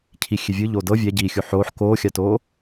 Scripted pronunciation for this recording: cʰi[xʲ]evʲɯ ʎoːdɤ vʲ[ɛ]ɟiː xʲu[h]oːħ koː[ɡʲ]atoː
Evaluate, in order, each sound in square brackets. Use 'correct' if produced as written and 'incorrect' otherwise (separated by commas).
correct, correct, incorrect, incorrect